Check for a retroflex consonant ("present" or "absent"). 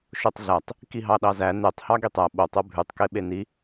absent